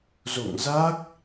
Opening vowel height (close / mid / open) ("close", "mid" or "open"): mid